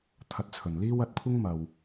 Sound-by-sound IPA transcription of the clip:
t̪ʰ ɐ˨˥ t̚ t͡sʰ ɵ˨ n l iː˥ w ɐ˧ t̚ kʷʰ ɪ˥ ŋ m ɐ˧ w

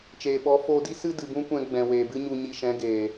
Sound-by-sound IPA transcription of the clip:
t͡ʃ eː˨ ɓ ɔ˨˦ f oː˧ d i˦ s ɨ˦ d ɨ˨ b ũ˦ kʷ ɛ̃˧ ɡ͡b ɛ̃˨ w eː˨ b ɨ˦ ɲ u˧ ɲ i˧ ʃ ɛ̃˨˦ ɡ eː˨

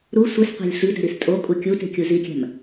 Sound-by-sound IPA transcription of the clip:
ɾ u sʷ e s qʷ æ̤ lʲ ɬ i d æ̤ ɾ i s tʼ o kʼ u kʲ u t e̤ kʲ u z i kʲ æ̤ m

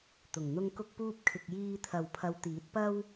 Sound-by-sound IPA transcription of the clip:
t̪ ʊ˨˩ ŋ n̪ ʊ˧ ŋ k ʊ˧ k̚ p uː˧ p̚ kʰ ɪ˨ k̚ j iː˧ t̪ʰ ɐ˨ w pʰ ɐ˨˧ w t̪ iː˨˥ t̚ p ɐ˥ w

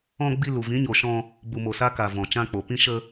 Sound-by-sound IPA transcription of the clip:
ɔ̃˧ ɡ͡b i˧ l u˨ v ĩ˨˦ ɲ o˨ ʃ ɔ̃˧ | b u˨ m o˨ s a˧ k a˨ v ɔ̃˨ t͡ʃ ã˧ k͡p o˨ p ĩ˧ ʃ ə˧

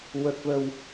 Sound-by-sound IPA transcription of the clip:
w ə˨˩ k̚ v ə˨˩ w

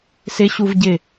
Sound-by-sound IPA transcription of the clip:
s ɪ ɕ u v ɟ ɪ

